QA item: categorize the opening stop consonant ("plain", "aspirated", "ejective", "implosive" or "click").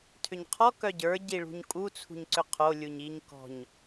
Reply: aspirated